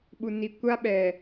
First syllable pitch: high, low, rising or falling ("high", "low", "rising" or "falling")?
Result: low